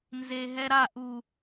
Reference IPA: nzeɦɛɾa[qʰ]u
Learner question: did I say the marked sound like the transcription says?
no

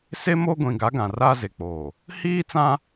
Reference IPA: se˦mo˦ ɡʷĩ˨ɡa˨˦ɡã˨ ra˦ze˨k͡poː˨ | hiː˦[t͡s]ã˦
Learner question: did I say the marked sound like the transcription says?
yes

